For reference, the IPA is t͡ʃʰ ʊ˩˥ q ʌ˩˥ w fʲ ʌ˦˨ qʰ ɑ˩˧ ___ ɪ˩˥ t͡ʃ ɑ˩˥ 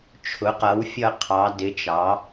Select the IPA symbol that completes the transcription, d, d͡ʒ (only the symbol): d